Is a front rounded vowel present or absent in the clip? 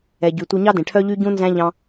present